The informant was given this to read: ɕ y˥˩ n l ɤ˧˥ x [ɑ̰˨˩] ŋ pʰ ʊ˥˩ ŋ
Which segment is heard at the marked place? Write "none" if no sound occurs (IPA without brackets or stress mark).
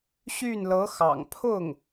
ɑ̰˨˩